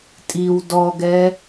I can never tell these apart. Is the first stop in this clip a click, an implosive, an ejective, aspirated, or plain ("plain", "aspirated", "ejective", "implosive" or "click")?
ejective